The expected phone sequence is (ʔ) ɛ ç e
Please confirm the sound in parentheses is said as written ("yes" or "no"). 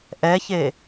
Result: yes